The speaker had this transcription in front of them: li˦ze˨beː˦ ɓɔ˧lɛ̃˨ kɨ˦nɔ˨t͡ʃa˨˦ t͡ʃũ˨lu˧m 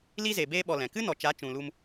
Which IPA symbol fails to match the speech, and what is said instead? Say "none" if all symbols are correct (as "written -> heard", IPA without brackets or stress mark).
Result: none